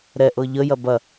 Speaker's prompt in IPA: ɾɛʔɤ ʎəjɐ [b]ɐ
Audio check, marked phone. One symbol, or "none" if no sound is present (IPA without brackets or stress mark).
b